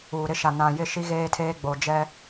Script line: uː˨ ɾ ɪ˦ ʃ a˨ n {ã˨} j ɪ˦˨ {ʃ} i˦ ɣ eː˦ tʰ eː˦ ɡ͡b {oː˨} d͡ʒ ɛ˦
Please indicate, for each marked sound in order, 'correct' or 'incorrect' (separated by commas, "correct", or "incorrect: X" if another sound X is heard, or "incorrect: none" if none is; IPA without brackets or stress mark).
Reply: correct, correct, incorrect: o˨